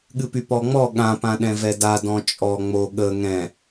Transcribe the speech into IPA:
ɠ ɨ p y p ɔ ŋ͡m ɔ ɠ ã p ã ɗ ɛ̃ v ɛ d a d ɔ̃ t͡ʃʼ ɔ ŋ͡m o ɠ ə ŋ ɛ̃

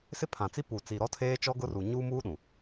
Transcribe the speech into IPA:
s ɪ˦ pʰ ã˨ t͡s i˦ p u˨ t͡s i˨ ɾ ɔ˦ tʰ eː˦ t͡ʃ ɔ˦ ɡ ʊ˦ r u˨ ɲ uː˦ m uː˦ ɗ ũ˨

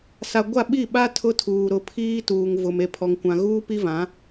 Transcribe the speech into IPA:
s a˨ ɡʷ a˦˨ ɓ i˦˨ ɓ a˦ tʰ ʊ˦ tʰ uː˨ ɾ ʊ˨ pʰ iː˦ t uː˨ ŋ v ʊ˨ m e˨ pʰ ɔ˨ ŋ kʷ ã˨ ɣ uː˦ p i˦ v ã˨˦

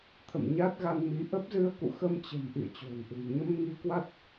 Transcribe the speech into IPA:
t̪ʰ ə̰˧˨ m ɲ a˦˥ t̚ ɣ a˧ n m i˨˦ ʔ ə˦˥ p̚ z ɨ˧ ə̯ k ṵ˧˨ x ə˧ m t͡ɕ ə̤˨˩ m ʔ ḭ˧˨ ə̯ t͡ɕ o̤˨˩ n ʔ ṳ˨˩ j ɲ ə˧ m ŋ i˧ k w a˦˥ t̚

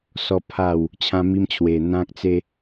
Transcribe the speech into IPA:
s ɔ˦ pʰ a˥˧ w | t͡ɕʰ ã˦ m i˦ m t͡ɕʰ w e˨˩ n̪ ã˦ k̚ t͡s e˦

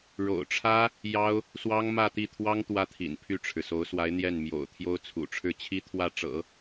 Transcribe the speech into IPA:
ɻ o̰˨˩ ʊ̯ ʈ͡ʂʰ ä˥ | j ɑ˥ ʊ̯ | s w ɑ˥ ŋ m ä˥˧ t̪ i˥˩ t̪ʰ w ɑ˥ ŋ t̪ w ä˥ t̪ʰ ḭ˨˩ n pʰ y˥˩ ʈ͡ʂʰ ɻ̩˩ s o˧˥ ʊ̯ s w a˧˥ ɪ̯ n̪ j ɛ˥˩ n m j o̰˨˩ ʊ̯ t̪ʰ j o˥ ʊ̯ t͡sʰ ṵ˨˩ ʈ͡ʂʰ ɻ̩˥˩ t͡ɕʰ i˥ t̪ʰ w ä˥˩ ʈ͡ʂ ɤ̰˨˩˦

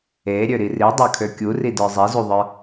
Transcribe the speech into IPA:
e ɾʲ ø ɾ i r i dˤ ə˞ kʰ ø kʲ u r i d ə˞ zˤ i z u ðˤ ə˞

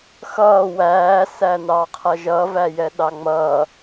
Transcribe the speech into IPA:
x ʌː w æː s æ n ɑ qʰ ʌ ʒ ʌ v æ j ɛ ɗ ɑ ŋ͡m ʌ

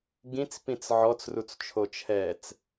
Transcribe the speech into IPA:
ɡ ĩ t͡s p ĩ t͡s ʕ ɔ t͡s r u t͡s t͡ʃʰ o t͡ʃʰ ɛː t͡s

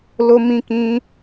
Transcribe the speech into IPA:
l o˧ m ĩ˧ k ĩ˧

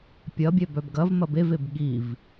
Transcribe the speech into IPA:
pʲ ɐ bʲ ɛ b œ b ɡ ɐ v m ɐ b e v e b ɠ i v

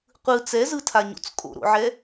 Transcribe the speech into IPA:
qʷ ɯ t͡s ɛ z ɯ tʰ a ɲ o̰ t͡s kʼ o̰ ɾ o̰ ʕ ɛ

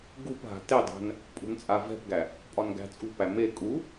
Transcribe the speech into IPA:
ɡ u p ɦ a̤ t e dˤ æ̤ n | pʼ ṳ n t͡sʼ a v ɛ̤ p ɡ æ | pʼ ɒ n ɡ æ̤ t͡sʼ ṳ p æ m e kʼ u

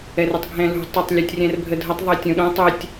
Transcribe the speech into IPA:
ɛ r ʏ tˤ ɡʱ ɛ̃ l ṳ tˤ ʊ tˤ lʲ u tʲ rʲ ɛ̃ r bʱ ə dʱ ə tˤ ðˤ ɜ tʲ õ ɗ õ tˤ ɪ tʲ

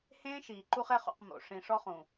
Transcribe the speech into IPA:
h ẽː˦ ʃ iː˨ ǃ u˦ χ ɛ˦ χ ṵ˦˨ q m o̰˨ ʂ ĩ˨ ʂ ɔ˦ χ ũ˨

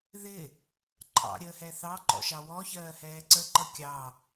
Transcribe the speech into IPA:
ð ɪ | ǃʼ ɑ̰ ɾʲ əː h ɛ θ ɑ ǃ ɔ̰ ʃ ɑ w ɔ ç ɜː h ɛː ǀ ə ǃ ʌ kʲ ɑ

